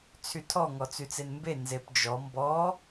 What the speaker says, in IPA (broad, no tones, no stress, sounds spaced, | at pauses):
t͡sʰ y tʰ ɔ ŋ ɔ t͡s y t͡s e n m b e n z e p d͡ʒ ɔ m b ɔ